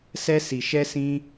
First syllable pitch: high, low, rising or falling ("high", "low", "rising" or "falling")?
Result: high